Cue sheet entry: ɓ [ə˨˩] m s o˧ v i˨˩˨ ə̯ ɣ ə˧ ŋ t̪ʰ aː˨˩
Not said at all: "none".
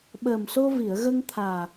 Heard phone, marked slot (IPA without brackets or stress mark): əː˨˩